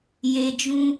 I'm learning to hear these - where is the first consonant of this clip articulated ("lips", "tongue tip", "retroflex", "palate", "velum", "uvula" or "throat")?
palate